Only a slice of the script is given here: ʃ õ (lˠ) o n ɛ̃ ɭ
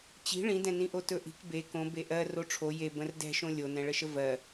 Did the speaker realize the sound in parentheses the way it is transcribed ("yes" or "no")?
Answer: no